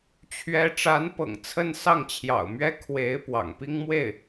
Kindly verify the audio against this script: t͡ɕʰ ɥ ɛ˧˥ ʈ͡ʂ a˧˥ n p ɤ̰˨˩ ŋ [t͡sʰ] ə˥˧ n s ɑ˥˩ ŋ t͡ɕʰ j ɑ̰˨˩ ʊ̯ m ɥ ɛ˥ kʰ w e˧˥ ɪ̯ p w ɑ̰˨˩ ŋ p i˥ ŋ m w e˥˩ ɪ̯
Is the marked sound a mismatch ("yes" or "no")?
no